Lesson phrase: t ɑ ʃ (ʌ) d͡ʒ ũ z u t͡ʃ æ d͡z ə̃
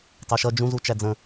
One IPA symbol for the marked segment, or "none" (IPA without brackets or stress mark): ʌ